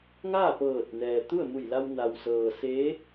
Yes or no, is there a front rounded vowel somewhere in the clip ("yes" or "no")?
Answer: no